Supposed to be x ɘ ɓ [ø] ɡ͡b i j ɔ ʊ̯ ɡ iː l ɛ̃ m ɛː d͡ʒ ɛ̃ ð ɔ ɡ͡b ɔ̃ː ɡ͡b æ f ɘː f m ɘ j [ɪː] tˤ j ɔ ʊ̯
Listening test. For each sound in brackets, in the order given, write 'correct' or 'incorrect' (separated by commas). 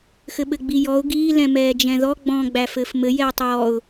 incorrect, incorrect